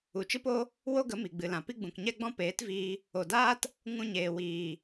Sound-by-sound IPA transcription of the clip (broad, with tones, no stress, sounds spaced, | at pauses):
u˨ t͡ʃ ɨ˦ p o˦ | w o˦ ɡ ə˨˦ m i˨ ɡ͡b ɨ˨ l ã˨ p i˦ ɡ͡b ũ˨ k ɲ ɛ˦ ɡ͡b ɔ̃˦ p eː˨˦ t v iː˧ | o˨ d aː˦ t | ŋ ũ˧ ɲ eː˨ w iː˨